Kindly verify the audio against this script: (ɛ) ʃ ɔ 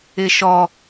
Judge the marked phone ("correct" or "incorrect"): incorrect